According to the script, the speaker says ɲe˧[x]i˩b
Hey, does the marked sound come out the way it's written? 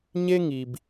no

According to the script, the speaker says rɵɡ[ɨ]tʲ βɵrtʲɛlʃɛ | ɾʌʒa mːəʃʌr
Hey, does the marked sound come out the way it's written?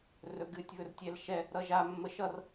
yes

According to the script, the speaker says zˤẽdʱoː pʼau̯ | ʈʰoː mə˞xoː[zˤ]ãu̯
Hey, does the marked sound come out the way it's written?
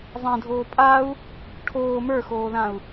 no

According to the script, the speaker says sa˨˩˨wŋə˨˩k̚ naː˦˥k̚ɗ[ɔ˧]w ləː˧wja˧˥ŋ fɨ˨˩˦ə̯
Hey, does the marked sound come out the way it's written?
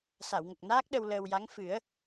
no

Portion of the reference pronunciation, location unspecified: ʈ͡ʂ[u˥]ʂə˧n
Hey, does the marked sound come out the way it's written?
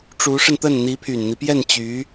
no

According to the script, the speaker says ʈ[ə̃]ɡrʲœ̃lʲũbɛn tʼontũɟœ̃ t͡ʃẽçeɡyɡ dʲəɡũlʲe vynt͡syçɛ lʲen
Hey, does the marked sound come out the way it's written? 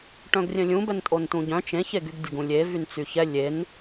no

